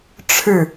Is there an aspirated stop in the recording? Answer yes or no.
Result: yes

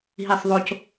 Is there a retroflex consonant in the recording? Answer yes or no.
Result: no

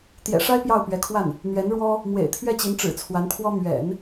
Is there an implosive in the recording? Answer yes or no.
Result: no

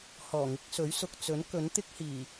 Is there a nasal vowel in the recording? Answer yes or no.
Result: no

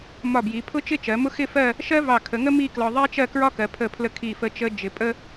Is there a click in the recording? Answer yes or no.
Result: no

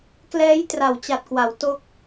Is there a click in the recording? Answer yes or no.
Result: no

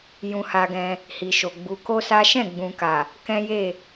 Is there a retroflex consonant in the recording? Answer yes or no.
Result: no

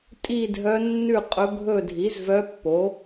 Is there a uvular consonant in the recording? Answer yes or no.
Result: yes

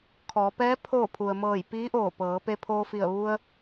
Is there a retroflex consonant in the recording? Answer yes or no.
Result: no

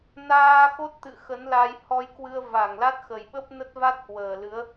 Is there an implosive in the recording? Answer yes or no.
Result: yes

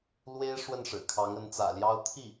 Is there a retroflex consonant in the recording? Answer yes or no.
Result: yes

